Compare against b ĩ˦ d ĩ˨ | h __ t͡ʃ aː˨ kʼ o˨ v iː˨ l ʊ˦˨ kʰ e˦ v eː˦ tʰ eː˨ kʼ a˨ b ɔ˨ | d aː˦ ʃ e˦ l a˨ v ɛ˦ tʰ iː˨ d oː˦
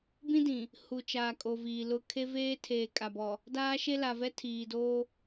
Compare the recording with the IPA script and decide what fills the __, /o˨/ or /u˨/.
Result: u˨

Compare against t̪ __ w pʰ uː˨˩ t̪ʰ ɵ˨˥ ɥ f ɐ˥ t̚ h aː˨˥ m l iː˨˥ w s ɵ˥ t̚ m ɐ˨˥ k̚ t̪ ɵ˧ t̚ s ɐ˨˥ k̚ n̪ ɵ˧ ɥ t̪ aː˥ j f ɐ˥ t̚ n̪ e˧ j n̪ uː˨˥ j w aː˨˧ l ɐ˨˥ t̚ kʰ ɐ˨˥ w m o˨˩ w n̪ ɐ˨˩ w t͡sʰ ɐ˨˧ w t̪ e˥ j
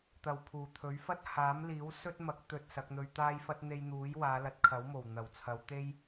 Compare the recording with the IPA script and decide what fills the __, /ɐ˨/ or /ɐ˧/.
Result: ɐ˨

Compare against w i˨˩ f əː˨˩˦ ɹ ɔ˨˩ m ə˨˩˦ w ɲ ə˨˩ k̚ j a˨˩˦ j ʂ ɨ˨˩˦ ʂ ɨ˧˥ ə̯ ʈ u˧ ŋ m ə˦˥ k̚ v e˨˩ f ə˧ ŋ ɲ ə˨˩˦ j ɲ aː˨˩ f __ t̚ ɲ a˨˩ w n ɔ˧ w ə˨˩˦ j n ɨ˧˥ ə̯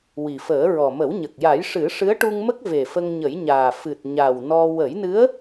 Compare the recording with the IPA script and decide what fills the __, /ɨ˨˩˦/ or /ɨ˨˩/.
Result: ɨ˨˩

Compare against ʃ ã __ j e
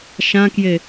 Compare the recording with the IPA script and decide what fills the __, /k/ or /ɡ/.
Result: k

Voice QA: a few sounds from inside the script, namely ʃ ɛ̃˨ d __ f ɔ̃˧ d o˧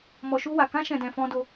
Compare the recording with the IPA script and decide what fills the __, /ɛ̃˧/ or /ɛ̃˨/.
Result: ɛ̃˨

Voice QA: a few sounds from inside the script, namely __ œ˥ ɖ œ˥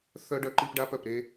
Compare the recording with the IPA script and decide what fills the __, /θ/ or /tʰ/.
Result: θ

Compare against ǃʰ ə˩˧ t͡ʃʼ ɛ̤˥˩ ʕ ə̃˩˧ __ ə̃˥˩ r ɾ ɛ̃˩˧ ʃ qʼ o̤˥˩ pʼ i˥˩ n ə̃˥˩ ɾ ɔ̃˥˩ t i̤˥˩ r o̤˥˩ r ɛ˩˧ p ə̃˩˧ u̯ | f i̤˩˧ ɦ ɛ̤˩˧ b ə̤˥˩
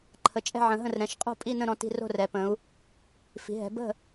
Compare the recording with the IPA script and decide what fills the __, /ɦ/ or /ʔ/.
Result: ɦ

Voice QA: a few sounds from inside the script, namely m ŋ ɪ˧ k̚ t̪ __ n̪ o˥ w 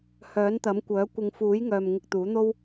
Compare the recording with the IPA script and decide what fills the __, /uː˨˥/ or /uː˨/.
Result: uː˨˥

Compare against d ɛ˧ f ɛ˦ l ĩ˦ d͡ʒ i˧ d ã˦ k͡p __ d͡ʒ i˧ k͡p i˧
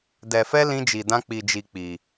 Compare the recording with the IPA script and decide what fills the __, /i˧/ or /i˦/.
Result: i˧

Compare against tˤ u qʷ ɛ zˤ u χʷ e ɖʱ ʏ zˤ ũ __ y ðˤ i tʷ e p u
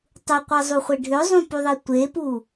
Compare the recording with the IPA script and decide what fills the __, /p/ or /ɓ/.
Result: p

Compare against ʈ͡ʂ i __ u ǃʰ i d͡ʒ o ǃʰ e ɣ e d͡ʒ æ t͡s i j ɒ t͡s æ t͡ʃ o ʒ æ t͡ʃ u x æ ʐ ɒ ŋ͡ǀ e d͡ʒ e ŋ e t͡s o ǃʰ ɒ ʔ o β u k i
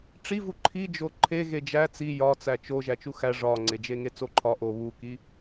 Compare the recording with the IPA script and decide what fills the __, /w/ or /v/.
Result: v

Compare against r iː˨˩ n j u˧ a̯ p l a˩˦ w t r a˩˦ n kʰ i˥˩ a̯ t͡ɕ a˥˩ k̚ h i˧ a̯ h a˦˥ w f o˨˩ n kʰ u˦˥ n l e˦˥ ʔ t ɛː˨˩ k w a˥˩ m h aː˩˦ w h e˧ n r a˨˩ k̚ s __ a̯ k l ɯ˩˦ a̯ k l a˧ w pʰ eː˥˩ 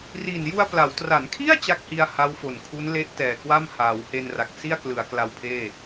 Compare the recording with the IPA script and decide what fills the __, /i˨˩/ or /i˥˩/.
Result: i˥˩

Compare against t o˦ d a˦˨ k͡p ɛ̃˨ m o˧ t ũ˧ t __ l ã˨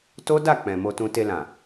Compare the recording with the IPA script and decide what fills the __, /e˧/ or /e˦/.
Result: e˧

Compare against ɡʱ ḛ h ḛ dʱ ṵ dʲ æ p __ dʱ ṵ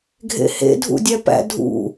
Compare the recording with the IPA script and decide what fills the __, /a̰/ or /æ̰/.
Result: æ̰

